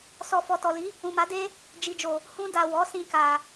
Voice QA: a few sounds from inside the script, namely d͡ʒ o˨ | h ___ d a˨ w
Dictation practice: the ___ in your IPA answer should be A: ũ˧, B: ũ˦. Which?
A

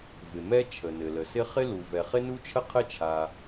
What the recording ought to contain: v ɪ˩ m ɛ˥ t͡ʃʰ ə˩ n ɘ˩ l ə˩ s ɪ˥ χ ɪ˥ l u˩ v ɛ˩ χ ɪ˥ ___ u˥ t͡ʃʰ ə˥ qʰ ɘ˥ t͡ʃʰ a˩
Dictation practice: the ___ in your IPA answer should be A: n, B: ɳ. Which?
A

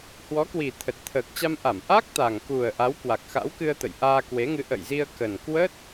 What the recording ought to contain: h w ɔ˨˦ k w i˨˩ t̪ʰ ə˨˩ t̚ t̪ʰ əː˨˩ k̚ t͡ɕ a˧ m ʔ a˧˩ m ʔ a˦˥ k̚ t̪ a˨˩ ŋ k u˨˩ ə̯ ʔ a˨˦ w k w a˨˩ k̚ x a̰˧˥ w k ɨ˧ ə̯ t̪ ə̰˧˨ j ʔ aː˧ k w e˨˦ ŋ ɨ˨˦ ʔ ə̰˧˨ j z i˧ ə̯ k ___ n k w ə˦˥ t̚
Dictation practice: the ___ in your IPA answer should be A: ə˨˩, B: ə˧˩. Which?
A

